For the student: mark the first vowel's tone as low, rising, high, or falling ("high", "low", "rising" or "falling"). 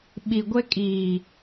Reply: low